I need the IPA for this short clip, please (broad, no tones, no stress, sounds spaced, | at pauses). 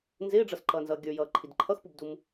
n z ɪː ɖ͡ʐ ʌ s ǃ ʌː n z ʌː ɡʲ ə˞ j ʌː ǃʰ i d ǃʰ ʌ x p u b d u m